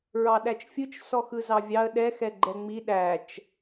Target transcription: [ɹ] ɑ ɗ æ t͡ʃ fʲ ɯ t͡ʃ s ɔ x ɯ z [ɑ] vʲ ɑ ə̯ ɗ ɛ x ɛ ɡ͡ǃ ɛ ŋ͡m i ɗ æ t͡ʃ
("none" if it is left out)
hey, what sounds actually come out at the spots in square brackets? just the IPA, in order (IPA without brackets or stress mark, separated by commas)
ɹ, ɑ